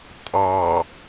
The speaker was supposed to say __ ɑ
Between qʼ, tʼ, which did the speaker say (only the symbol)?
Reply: tʼ